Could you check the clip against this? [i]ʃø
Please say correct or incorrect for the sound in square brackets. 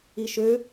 correct